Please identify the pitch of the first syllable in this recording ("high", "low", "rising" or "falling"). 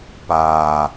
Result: low